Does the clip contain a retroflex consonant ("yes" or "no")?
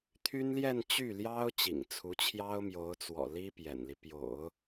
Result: no